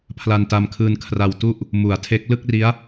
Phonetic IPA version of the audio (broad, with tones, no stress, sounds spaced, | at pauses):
pʰ l a˧ n t a˧ m kʰ ɯː˧ n kʰ r a˧ w t u˥˩ ʔ | m u˩˦ a̯ tʰ e˦˥ k̚ l ɯ˥˩ k̚ r i˦˥ a̯